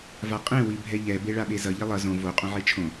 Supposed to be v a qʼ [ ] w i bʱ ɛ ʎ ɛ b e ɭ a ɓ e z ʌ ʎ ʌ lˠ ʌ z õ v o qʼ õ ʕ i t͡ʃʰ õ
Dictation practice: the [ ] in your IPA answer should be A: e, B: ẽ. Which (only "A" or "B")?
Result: B